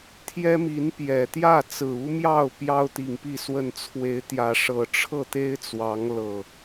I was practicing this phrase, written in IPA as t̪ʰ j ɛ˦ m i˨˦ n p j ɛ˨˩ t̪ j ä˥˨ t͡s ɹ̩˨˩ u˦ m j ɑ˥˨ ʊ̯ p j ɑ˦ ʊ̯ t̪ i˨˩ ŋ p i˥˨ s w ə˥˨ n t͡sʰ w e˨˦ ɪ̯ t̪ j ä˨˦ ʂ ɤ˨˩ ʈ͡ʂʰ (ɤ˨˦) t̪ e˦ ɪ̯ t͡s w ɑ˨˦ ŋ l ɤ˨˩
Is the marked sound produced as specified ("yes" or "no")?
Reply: no